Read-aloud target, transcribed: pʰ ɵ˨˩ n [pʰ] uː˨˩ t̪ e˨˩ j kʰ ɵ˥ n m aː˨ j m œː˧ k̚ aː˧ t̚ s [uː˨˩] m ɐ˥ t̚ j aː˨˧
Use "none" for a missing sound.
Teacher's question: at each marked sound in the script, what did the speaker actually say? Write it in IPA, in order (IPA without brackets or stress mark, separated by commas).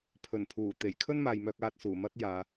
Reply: pʰ, uː˨˩